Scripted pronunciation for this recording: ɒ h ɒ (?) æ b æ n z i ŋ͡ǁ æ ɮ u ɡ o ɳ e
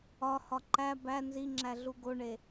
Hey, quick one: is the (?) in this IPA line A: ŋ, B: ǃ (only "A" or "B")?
B